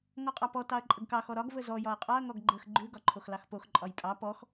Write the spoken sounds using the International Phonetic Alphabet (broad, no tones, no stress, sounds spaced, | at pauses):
ŋ ɔ qʼ ɑ p ɔ t ɑ ɐ̯ ǃʼ ə ɡ k ɑ x ɔ ɾ ɒ ɡ v ə z ɔ j ɒ ɐ̯ qʼ ɒ ɐ̯ ŋ ɔ ɡ ɡ͡ǃ ə x ɡ͡ǃ ʉ ɡ ɒ ǃʰ o x l ɑ x p o x ǃʼ ɒ j pʼ ɑ p ɔ x